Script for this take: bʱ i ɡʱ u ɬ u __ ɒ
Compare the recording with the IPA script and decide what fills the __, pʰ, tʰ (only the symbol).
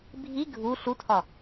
tʰ